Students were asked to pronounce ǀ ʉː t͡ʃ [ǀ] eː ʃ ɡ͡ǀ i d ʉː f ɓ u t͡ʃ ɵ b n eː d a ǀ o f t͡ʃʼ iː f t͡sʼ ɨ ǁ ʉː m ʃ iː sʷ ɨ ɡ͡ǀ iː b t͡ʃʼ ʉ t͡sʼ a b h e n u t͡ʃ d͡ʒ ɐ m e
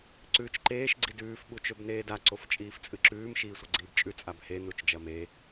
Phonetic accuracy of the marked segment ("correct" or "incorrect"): incorrect